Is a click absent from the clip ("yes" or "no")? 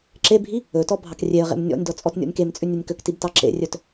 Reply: no